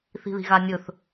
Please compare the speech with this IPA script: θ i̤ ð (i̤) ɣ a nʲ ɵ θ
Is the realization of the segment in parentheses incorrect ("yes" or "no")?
no